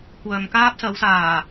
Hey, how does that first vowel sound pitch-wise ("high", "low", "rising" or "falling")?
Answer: low